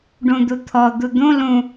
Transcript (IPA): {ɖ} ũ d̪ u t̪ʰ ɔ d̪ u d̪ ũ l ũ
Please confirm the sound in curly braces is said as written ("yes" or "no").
yes